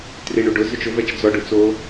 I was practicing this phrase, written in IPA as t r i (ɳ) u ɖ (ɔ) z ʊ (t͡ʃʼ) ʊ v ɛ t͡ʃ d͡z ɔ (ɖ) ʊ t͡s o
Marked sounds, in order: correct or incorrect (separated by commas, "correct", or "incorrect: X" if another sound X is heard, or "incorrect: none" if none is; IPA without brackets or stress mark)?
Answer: correct, incorrect: ʊ, incorrect: t͡ʃ, correct